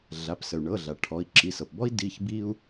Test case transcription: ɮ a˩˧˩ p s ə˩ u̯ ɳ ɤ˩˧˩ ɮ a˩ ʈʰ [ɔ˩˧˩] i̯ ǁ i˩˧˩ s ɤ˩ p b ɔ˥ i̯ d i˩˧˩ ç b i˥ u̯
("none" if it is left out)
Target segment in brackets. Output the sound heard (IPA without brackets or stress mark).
ɔ˩˧˩